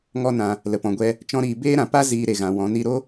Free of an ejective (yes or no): yes